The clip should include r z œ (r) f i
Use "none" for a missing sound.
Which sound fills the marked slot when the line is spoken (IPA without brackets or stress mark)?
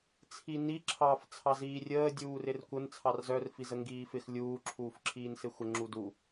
r